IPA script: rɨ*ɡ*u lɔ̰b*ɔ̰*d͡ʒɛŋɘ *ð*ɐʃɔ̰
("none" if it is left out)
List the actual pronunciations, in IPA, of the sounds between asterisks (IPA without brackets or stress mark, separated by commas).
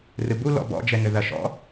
b, ɔ̰, ð